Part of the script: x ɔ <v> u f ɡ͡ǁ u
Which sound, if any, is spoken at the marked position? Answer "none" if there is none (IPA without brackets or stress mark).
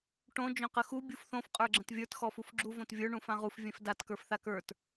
f